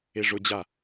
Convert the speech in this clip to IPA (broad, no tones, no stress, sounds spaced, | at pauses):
e ʐ ʊ d͡ʑ a